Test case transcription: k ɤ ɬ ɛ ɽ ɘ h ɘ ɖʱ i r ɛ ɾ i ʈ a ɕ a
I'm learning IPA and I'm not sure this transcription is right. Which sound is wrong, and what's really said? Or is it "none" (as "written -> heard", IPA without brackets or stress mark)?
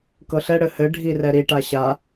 none